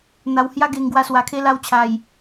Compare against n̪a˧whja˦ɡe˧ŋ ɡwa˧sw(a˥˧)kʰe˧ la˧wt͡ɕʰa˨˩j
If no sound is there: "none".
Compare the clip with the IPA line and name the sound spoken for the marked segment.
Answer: a˨˩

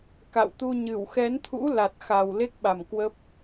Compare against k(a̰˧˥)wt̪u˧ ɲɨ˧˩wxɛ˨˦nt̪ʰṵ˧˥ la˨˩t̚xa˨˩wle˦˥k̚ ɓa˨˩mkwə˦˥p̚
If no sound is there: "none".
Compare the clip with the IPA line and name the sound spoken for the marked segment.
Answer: a̰˧˨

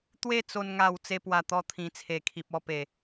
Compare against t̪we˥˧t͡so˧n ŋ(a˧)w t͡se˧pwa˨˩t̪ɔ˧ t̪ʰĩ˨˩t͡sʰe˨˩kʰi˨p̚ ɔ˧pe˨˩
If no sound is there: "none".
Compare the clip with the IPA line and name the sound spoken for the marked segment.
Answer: a˧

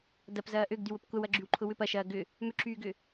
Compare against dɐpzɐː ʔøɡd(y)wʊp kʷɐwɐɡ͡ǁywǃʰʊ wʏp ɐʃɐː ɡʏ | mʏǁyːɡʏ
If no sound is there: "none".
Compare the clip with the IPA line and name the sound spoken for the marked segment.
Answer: y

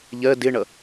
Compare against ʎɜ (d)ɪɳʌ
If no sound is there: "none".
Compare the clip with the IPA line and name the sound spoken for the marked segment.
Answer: d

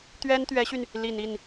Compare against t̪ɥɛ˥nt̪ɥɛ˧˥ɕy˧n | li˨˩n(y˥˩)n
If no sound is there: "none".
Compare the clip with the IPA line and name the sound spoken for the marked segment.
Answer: i˥˩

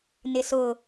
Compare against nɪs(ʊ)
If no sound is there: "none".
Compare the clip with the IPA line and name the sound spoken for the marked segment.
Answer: ʊ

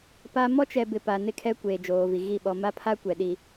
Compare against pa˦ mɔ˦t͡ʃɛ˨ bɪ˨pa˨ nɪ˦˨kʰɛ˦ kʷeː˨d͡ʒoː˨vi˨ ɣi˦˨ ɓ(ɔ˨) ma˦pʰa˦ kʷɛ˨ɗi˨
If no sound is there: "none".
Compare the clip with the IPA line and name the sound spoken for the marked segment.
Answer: ɔ˨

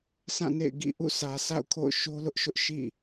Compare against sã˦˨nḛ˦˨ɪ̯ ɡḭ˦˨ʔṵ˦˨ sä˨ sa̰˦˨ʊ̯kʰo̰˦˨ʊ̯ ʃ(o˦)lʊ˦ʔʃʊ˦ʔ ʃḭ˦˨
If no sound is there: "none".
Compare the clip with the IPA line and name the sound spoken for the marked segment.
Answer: o˦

